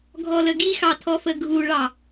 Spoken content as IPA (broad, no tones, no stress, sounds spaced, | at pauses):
ɡʱ ɔ l ə ɡ i x ɑ tʰ ɔ f ə ɡʱ u ɭ ɑ